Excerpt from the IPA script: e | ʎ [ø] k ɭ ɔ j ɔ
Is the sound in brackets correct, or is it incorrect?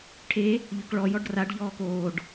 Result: correct